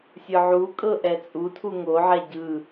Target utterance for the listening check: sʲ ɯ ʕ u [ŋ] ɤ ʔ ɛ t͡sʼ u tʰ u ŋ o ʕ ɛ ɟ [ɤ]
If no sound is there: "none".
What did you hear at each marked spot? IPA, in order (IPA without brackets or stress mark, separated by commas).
kʼ, ɯ